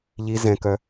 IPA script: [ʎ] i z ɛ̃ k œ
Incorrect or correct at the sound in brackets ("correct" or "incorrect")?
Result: correct